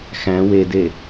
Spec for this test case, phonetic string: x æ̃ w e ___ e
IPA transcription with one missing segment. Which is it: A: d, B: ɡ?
A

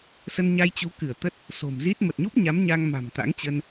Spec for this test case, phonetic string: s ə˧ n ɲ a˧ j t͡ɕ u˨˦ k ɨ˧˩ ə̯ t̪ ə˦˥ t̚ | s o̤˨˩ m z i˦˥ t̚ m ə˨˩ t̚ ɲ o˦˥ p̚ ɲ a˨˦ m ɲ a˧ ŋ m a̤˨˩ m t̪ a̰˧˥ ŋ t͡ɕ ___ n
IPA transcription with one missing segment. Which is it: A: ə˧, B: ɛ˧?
A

